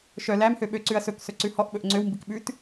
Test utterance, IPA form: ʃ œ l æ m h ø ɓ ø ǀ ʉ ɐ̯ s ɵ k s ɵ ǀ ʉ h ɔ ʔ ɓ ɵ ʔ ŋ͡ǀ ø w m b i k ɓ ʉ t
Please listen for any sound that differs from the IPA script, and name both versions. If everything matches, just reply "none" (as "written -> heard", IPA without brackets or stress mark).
none